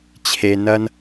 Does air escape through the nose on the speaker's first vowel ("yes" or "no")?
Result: no